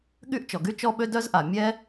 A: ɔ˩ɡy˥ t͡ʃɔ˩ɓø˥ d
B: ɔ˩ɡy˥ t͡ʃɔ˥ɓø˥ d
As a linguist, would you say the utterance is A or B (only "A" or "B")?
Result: B